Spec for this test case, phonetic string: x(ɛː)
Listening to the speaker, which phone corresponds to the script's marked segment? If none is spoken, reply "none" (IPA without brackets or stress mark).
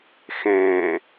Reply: ɛ̃ː